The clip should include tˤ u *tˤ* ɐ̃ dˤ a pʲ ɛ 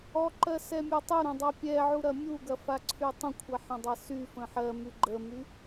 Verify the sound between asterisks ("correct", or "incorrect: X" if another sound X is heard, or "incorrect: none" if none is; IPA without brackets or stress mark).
incorrect: ɾ